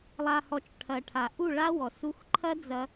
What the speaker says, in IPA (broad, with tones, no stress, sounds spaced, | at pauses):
lˠ a˨ h ɔ˨ t͡ʃ ʈʰ ɐ˨ ʈʰ a˨ ʔ u˦˨ ɭ a˦ w ɔ˨ s u˦ x ǃʰ ɐ˦ d͡z ɐ˧